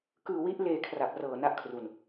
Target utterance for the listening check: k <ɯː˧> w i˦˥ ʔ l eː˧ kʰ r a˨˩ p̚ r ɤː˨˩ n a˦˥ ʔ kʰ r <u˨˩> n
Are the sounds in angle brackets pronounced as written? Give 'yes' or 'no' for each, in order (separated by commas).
yes, yes